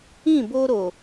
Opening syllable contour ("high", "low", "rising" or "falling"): falling